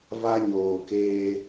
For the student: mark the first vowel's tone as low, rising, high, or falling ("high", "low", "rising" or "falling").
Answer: high